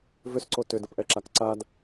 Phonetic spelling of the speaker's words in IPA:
v ʏ s ǀ o t ʏ d ə p ʔ ɛ ǁ a k ǀ a d

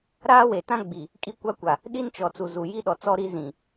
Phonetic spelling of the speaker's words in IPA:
ɾ aː˦ w e˨ t ã˦ ɡ͡b i˨ | kʼ i˦ kʷ a˦ kʷ a˨ | ɗ i˦ n t͡ʃ ɔ˨ t͡s u˨ z u˨ j i˦ ɗ ɔ˨ t͡s ɔ˦ ɾ i˦ z ĩ˨

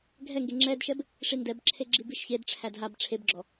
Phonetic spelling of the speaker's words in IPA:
ɡʱ ɛ ŋ ɡ e ŋ͡ǁ ɛ d ʃ ɛ b | ʂ i n d ɛ b ǁʰ e ɡ͡ǁ i b i ʃ ç e d ʈ͡ʂʰ æ d ɦ a b ʈ͡ʂʰ e b ɡ͡ǁ ɔ

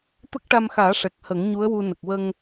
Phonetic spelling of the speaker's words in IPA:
t̪ ə˦˥ k̚ ʈ a˧ m x aː˨˩˦ ʂ ɛ˨˩ k̚ h ə˨˩˦ ŋ ɲ u˧˥ ə̯ w u˧ n ə˨˩ k̚ w ə˧ ŋ

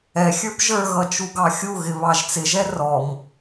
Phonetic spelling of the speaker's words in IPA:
ɛ xʲ ə˞ b ʒ ə˞ ɣ ʌ t͡ʃ u ɡ ɑ xʲ u ɣ ɪ β ɑ ʒ t͡s ɪ ʒ ɛ r ɔ m

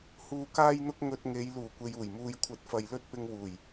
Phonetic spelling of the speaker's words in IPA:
h uː˧ k aː˥ j n̪ ʊ˥ k̚ ŋ ɵ˧ t̚ ŋ e˨˧ j l uː˨˩ kʷ e˨ j uː˨˩ j m uː˨ j kʷʰ ɐ˨˥ t̚ f ɐ˨ j l ɵ˥ t̚ p ɪ˧ ŋ w uː˨˩ j

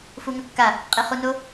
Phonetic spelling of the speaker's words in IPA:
f u ŋ ɵ kː a | qʼ e χ u n o

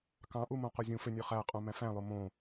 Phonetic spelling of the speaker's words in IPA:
k ɑ̃ ʔ u m õ q o zʲ ũ f ø nʲ ø χ æ qʼ õ m æ̃ f æ̃ lˠ o m õ

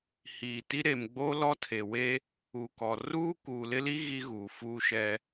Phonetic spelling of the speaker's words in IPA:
h iː˨ t i˦ ɾ e˨ m ɡ͡b o˦ l ɔ˦ tʰ e˨ w e˦ | u˨ k ɔ˨ r uː˦ k uː˨ l ɪ˦ l i˦ ɣ i˦ ɣ uː˨ f uː˦ ʃ ɛ˦

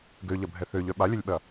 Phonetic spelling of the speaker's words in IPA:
ɡ ø ʎ ɐ bʱ ɛ θ ø ʎ œ ɓ a lʲ ɐ lʲ ɓ ɐ

